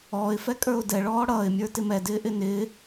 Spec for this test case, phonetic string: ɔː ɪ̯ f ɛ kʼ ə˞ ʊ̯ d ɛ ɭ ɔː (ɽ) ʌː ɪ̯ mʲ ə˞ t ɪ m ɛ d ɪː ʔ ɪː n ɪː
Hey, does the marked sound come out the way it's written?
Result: yes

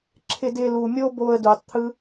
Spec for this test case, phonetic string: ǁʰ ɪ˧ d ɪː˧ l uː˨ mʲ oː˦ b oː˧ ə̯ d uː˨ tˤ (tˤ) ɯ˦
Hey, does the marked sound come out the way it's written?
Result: no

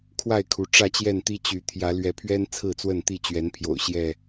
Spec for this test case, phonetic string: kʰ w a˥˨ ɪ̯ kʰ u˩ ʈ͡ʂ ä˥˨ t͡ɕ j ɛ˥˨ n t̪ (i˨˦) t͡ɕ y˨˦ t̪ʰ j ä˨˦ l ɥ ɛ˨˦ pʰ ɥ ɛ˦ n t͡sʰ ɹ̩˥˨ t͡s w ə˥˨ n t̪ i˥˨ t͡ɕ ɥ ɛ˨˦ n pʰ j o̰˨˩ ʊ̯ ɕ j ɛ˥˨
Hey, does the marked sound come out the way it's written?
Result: no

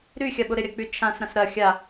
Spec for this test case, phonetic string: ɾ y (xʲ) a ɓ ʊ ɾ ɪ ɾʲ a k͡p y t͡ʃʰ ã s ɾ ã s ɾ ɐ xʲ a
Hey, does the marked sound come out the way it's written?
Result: yes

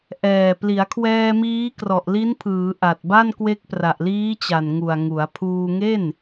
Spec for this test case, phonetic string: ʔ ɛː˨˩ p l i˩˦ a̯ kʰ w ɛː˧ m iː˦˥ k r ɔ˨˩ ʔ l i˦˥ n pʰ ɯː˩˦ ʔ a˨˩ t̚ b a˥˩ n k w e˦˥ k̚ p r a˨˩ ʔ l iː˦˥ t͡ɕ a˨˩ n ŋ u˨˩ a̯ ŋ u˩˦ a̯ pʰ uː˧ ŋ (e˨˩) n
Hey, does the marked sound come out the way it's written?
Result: no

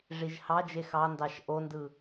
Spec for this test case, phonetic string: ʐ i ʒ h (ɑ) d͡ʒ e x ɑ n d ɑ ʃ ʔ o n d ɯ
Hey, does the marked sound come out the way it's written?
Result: yes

